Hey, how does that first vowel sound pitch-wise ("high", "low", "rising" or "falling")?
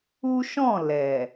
high